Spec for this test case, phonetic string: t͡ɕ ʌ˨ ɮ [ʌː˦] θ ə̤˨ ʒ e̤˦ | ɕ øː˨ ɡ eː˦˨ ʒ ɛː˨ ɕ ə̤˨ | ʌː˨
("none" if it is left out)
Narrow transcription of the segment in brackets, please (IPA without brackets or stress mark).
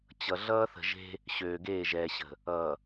ʌː˦